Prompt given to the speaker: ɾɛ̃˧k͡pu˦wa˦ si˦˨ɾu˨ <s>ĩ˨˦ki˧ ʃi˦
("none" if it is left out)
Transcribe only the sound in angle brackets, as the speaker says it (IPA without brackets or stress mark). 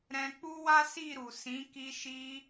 s